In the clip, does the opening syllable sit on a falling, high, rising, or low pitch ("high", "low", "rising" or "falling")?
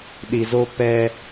low